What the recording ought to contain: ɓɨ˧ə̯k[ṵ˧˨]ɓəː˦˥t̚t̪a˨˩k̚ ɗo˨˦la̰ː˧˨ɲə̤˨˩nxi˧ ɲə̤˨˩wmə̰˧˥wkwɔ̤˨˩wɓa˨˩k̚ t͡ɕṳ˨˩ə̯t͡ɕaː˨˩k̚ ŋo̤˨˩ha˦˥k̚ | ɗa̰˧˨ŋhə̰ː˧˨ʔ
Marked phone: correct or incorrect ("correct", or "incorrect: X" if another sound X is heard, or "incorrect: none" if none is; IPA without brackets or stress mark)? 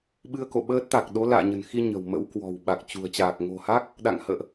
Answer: incorrect: o̰˧˨